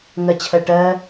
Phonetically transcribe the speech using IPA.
ŋɜt͡ɕʰɜʈɜ

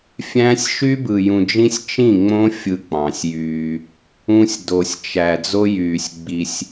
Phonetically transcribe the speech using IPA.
fʲæ̃˦sʲ ʃy˦ bɯ˨jũ˨d͡ʒĩ˦sʲ t͡ʃĩ˦˨ŋ͡mõ˦ fʲɯ˦k͡pɑ̃˨sʲjyː˦ | ũ˦sʲ do˨sʲt͡ʃæ˨ d͡zo˦jyː˨sʲ ɡ͡bi˦sʲ

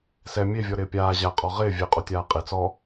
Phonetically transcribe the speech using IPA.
sɛ mʲevʲɔɾɪː pʲaː ʑaqʼɔ ʁɪː vʲeqʼutʲaː qʼe t͡sɔ

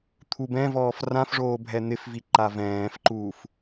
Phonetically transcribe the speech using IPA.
t̪ʰubɛ̃vɔːf rãfʐoː bʱɛn̪ɪfvi ǃavɛ̃ːfǃuːf

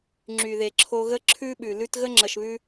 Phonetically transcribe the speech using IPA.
ŋ͡ǁy˨ðe˨ ǁʰo˧ɣə˦ ǁʰʉ˦ɓʉ˨ lʉ˧tɣə˦ ŋ͡ǁə˨ʃβʉ˧

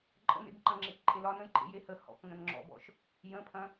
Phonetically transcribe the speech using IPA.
ǃʼə̰nḛb ǃɐ̃ŋ͡ǁekǃʼelɒ nə̃jǃʼḛjehə hɔ̰kŋə̃n ŋ͡ǁɔ̰bɔ̰ʃ | jə̃pʰɐ̃

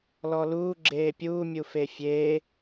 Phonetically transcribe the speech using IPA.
lɔluː ɡ͡ǁeːpʲuː mʲufefʲeː

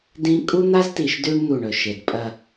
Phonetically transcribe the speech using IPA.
dĩ˦ kʼu˦n̪a˦zti˨ʃdʉ˦ɳ n̪u˦˨ɳɵ˨ʃe˨d pʼɐ˨

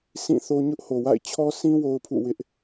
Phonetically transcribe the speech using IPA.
sʰĩ˦˨θo˦ ɲʊ˦ʔho˨wa̰˦˨ɪ̯ t͡ɕʰɔ˦sʰĩ˦ wo˦ʊ̯pʰṵ˦˨wɪ˦ʔ

